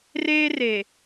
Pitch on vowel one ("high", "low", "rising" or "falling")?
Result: high